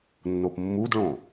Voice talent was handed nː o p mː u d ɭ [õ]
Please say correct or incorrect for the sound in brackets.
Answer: correct